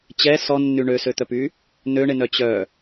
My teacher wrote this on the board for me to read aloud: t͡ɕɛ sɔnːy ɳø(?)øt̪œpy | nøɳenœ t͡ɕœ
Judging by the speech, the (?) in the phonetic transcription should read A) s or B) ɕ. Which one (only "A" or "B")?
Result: A